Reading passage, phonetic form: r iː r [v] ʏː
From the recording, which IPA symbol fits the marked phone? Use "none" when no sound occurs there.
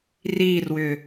w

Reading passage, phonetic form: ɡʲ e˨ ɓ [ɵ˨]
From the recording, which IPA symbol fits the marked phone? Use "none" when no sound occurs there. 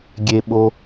o˨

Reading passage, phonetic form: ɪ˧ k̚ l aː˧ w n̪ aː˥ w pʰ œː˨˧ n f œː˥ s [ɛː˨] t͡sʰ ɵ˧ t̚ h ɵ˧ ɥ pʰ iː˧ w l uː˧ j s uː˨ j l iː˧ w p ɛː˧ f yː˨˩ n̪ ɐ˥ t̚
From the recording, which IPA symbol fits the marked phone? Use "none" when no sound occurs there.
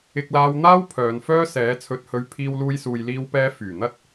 ɛː˨˥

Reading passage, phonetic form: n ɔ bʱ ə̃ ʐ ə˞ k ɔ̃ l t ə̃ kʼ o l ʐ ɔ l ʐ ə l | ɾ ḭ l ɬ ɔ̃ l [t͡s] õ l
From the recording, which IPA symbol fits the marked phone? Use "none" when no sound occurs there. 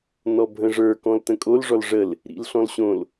ɕ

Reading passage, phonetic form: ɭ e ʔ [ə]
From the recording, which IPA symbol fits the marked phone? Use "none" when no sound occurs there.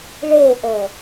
ə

